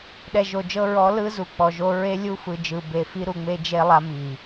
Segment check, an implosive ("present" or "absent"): present